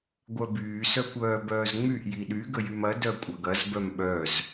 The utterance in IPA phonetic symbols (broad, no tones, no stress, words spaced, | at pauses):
ɡʷœbyː sœkʷœːbœːzŋ͡myʔ jiɗy ɡəjymɐ dœkʷʼɐɡɐz bœmɓœz